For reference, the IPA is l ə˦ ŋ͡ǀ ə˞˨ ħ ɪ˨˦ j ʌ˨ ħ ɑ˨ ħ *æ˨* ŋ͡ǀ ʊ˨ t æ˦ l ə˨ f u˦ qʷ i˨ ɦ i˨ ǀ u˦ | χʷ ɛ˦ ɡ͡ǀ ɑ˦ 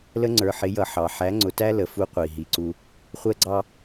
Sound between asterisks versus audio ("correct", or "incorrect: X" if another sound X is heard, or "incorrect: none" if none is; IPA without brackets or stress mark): incorrect: æ˨˦